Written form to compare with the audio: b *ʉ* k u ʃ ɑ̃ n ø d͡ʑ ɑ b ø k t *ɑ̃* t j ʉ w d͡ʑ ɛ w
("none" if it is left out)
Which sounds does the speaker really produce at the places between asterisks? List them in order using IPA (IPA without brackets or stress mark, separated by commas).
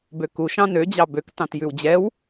ø, ɑ̃